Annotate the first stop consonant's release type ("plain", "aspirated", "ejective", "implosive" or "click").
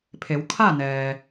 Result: aspirated